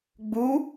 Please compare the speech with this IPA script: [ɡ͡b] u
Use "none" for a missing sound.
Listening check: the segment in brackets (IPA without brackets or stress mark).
ɡ͡b